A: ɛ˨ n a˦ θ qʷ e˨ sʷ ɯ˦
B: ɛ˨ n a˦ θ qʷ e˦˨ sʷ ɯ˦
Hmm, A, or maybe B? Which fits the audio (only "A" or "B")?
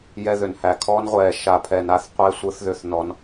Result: B